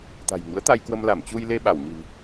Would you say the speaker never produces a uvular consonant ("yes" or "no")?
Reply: yes